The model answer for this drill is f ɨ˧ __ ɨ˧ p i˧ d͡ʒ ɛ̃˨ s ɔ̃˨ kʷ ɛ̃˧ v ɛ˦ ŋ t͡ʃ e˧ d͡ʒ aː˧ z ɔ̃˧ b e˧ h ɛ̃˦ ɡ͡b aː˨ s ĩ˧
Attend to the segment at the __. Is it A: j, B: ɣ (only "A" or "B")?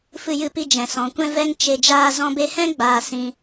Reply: A